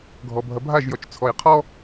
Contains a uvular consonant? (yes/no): yes